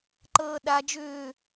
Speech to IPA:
ǃ ɤː ɗ a d͡ʒ ʏː

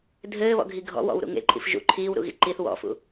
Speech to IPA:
dʱ ɘː β ɔ̰ ɡʱ i ɡʱ ɔ̰ w ɔ̰ w ɾ ṵ ŋ ḛ ǃʼ ḭ f ʒ ṵ ǃʰ iː w ɾ ṵ ɣ ḭ ǃ i θ w ɔ̰ f ṵ

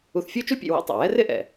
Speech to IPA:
u˧ θ fʲ u˥ t͡ʃ u˥ pʲ ḛ˧ w ḛ˥ tˤ ḛ˩ w ɛ˥ r ɪ˥ ʔ ɛ̰˩

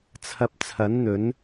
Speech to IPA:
t͡sʰ ɐ˧ p̚ t͡sʰ ɐ˨˥ n n̪ ɵ˨˥ n

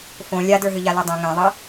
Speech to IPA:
f õ lʲ a d ə˞ ɦ ɨ ʎ a l e dˤ ɛ̃ ŋ ẽ ðˤ ɨ

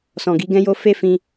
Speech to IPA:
s ɔ̃˨ ɡ i˨˦ ɡ ɛ̃˦ j o˦ f e˦ f ĩ˧

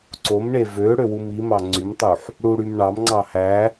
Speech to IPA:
ǀ o m ɳ e v ø ɽ ø w u m i m ɑ ŋ͡ǀ y m tˤ u ħ | ɽ u ɽ y m ɳ ɑ m ŋ͡ǀ ɑ h æ

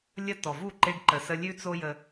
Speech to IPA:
lʲ ə˧ t ɔ˨ v u˦˨ ǃ e˧ ɖ ǃ ə˨ s ə˧ lʲ ʉ˦ t͡s o˦ j ə˧

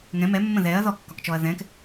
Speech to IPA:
ŋ ɛ̃ m ɛ mː ə̃ ð ɛ ɐ̯ ð ɔ kː ɒ k t͡ʃ ɔ ɐ̯ ð ɛ̃ k

